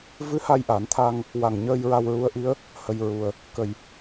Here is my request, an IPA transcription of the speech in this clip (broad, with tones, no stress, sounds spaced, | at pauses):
v ɨ˧˥ h a˧ j ʔ a˨˩˦ n t̪ʰ a˧ ŋ | w a˨˩ ŋ ɲ əː˧ j ɹ a˧ w ɹ u˧˥ ə̯ ʔ i˧˥ ə̯ | h ə˧ j ɹ u˧ ə̯ | k ə˨˩ j